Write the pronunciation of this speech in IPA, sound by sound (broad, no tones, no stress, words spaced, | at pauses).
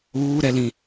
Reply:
uːɾɛlĩ